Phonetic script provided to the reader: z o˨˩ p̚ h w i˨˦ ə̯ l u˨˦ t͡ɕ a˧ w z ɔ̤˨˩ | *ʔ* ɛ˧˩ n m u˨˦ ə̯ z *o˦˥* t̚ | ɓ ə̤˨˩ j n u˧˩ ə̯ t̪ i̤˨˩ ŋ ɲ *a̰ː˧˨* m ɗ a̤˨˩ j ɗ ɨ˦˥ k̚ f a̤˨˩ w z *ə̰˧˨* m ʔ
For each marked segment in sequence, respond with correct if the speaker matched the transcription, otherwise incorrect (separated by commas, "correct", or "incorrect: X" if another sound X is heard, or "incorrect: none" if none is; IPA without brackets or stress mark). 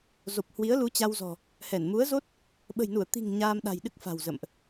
incorrect: h, correct, incorrect: aː˧, correct